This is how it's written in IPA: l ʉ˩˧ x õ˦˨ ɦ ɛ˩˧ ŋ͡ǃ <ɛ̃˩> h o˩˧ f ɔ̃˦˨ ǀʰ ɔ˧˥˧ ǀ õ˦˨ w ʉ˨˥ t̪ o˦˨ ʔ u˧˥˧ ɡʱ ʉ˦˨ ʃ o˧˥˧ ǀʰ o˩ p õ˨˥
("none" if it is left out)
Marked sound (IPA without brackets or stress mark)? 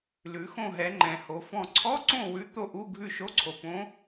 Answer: ɛ̃˩